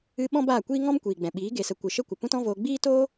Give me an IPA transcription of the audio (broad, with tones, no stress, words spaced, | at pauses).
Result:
ɨ˧ ɓɔ̃˦baː˦˨kʷiː˦ ŋɔ̃˦mkʷiː˨ɡ͡bɛ̃˨ɓiː˨˦ ɡe˨sə˨ kʷɨ˨ʃə˦kʷə˨ pũ˦tɔ̃˦voː˧ ɡ͡biː˦toː˦